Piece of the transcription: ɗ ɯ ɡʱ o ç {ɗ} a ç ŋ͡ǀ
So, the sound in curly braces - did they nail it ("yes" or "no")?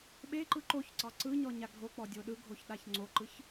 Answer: yes